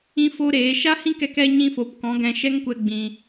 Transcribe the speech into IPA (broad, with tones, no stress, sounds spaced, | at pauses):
ĩ˦ f o˦ ɾ eː˨˦ ʃ a˦ h ĩ˦ k ɛ˧ k ɛ˧ ɲ ĩ˧ f o˨ p k ɔ̃˨˦ ɡ ɛ̃˧ ʃ ɛ˦ ŋ kʷ ɛ˧ ɡ͡b ĩ˨